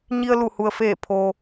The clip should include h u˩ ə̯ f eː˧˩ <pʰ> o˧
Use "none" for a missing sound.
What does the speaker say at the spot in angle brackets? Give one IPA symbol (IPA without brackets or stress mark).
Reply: pʰ